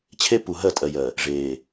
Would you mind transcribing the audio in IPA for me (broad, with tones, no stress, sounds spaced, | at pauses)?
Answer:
t͡ɕʰ e˦ p u˨ ɦ ɜ˦˨ tʼ ɜ˨ j ɜ˨ | ʐ eː˨